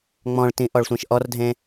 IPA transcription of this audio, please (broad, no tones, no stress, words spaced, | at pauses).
ŋ͡mɔ̃ɭtĩ ʔɔɭsʷẽʃʔɔrdʱẽ